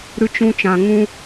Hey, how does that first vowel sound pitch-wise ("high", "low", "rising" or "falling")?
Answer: high